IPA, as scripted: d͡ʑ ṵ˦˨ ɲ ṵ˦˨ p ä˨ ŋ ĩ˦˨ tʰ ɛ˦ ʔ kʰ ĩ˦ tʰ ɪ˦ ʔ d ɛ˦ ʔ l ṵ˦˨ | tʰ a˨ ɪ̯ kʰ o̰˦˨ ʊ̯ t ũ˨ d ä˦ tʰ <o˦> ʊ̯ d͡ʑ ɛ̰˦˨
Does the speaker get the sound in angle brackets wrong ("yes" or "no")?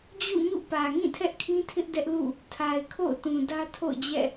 yes